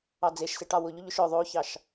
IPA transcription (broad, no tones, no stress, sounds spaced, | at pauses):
ɑ d͡z e ʃ s e ʈ ɑ w ʊ ʎ ʊ ʎ ʊ ʃ œ ðˤ o ç ɑ ʃ